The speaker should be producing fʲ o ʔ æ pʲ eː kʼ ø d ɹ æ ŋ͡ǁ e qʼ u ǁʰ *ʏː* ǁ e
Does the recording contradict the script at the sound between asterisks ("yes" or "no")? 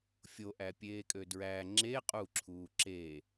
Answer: yes